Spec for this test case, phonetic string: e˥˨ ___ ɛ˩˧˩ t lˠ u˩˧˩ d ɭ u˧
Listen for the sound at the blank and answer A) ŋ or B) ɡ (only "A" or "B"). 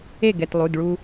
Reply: B